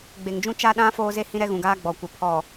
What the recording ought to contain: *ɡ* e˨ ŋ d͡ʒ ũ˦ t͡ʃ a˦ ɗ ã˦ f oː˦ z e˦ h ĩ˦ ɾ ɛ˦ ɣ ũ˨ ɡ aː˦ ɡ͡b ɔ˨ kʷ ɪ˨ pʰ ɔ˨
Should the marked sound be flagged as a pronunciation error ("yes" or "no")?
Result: yes